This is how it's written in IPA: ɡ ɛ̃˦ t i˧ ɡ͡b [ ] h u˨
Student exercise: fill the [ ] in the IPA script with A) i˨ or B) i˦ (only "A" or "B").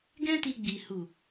A